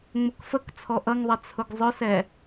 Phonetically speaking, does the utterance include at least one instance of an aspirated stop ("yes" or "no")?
yes